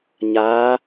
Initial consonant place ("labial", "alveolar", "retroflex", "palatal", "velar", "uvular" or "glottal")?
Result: palatal